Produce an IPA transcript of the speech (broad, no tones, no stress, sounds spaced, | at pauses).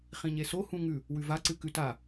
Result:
χ ĩ ɲ e s o h ũ ŋ ʉ | w ʉ v a ǀ ɨ k ʉ t a